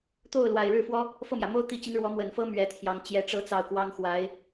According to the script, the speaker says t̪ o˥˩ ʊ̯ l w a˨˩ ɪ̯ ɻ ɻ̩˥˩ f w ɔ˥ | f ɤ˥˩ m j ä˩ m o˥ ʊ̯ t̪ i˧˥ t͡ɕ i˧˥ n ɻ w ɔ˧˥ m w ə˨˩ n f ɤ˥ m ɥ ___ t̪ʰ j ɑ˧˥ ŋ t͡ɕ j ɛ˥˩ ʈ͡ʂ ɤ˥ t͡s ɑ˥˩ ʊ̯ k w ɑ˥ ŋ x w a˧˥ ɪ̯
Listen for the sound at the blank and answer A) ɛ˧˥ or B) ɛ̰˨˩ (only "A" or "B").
A